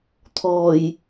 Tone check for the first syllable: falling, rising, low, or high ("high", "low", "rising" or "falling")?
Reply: low